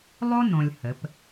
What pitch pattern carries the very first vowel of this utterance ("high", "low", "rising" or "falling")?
high